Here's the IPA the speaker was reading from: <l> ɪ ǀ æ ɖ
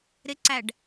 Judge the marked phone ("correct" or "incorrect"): incorrect